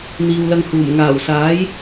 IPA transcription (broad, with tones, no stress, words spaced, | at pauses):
n̪iː˨wlɐ˧ŋ huː˨˩m ŋaː˨˩wsaː˨˥j